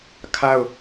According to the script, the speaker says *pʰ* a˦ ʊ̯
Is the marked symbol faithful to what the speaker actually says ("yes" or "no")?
no